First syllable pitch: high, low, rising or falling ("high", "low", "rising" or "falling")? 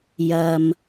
low